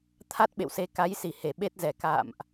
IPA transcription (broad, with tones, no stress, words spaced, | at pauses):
t̪ʰa˦˥t̚ɓḛ˧˨wse˨˦ ka˨˦jsi˧˩ he˧˩ɓe˦˥t̚zɛ˨˩ ka̰ː˧˨mʔ